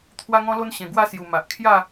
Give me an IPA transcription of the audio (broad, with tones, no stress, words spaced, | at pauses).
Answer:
t̪ʰwa˧ŋɔ̃˧lo˧n ɕẽ˨˩ɡwa˥˧ sju˨˩ma˨ʔ kʰja˥˧